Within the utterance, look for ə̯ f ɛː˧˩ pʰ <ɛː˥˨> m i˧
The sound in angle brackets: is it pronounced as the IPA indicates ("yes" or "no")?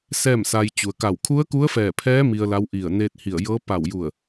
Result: no